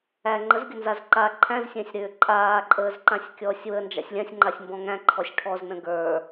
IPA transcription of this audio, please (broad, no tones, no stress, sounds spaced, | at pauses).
æ ŋ͡ǃ ə z ɡʲ ʊ n z a z ǃ a ǃʰ æ̃ z sʲ æ̃ sʲ ɾ ʏː ǃʼ aː ǃʼ əː z ǃ ã sʲ kʲ ɔː sʲ w ə n d͡ʒ a̰ sʲ lʲ ã sʲ ŋ͡ǃ a sʲ m b ɔ̃ ŋ æ̃ ǃʰ ɔ sʲ ʈʰ ɔ z n ə̃ ɡ ə˞